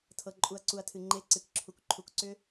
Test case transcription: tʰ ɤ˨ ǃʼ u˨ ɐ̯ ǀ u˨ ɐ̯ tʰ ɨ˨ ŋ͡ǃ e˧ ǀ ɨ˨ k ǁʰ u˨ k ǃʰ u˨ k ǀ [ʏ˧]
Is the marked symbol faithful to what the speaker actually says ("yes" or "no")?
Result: yes